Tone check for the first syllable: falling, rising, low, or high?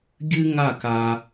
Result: high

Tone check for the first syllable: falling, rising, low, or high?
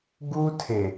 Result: high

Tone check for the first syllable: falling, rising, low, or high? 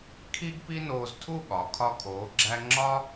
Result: high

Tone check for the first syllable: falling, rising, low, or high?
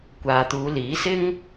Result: low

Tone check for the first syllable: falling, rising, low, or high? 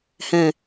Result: low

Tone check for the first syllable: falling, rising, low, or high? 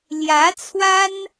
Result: rising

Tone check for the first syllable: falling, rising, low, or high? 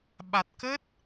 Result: low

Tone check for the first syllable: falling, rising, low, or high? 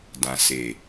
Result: low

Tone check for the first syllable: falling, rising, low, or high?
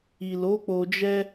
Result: low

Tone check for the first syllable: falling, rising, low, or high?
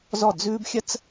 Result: falling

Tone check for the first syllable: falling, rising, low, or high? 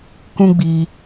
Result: high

